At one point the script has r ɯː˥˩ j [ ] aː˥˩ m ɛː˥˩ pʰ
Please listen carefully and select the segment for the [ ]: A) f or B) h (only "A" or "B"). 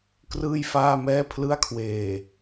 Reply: A